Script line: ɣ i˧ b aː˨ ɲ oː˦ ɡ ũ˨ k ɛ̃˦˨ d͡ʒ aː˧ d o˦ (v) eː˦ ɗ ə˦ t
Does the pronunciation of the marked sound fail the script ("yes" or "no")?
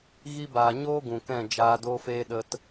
yes